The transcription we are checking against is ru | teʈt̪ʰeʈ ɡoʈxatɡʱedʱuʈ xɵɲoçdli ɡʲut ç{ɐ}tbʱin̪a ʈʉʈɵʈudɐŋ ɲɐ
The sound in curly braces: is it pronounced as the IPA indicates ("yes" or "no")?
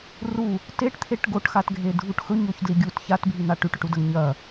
no